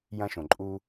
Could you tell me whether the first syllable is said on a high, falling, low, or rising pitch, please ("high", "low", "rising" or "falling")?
high